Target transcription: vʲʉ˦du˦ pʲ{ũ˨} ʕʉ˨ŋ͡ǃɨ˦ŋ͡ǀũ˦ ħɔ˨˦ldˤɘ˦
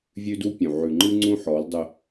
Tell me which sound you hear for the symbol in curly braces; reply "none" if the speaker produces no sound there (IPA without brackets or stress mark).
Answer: ũ˨